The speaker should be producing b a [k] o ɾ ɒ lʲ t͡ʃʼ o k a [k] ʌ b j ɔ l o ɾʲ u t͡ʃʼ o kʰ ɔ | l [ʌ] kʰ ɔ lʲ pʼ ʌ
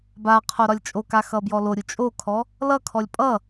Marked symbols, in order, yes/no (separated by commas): no, no, yes